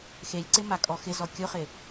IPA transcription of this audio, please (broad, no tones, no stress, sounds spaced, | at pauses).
x e lʲ ǀ ɪ m a kʼ ɔ x ɪ z ɔ kʲ ʊ χ ɪ